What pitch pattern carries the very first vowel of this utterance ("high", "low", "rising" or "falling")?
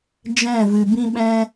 falling